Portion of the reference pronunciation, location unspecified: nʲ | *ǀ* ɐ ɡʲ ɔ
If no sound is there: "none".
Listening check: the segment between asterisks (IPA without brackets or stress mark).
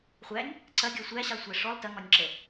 ǀ